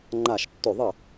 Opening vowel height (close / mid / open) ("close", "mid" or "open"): open